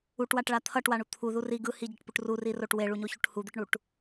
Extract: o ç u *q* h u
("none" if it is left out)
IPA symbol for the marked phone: ʈ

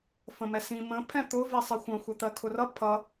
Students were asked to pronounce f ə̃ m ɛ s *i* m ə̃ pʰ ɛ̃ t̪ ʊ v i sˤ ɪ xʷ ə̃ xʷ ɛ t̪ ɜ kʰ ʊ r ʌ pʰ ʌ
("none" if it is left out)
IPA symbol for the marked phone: ĩ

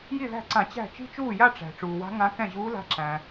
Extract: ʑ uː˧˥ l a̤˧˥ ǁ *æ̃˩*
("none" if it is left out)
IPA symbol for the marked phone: æ̃˩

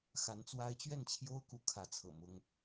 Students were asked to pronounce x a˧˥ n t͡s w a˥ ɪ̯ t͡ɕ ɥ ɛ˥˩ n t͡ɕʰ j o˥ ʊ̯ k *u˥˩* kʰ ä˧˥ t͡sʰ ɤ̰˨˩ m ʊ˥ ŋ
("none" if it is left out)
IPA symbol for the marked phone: u˧˥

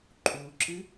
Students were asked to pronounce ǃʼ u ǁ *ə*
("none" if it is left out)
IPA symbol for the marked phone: ɨ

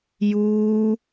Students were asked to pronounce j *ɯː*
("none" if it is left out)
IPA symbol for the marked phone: uː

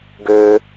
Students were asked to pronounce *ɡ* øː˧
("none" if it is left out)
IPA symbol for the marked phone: ɡ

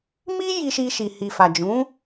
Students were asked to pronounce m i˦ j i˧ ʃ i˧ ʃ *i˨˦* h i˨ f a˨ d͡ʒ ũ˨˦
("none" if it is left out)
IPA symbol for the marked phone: i˧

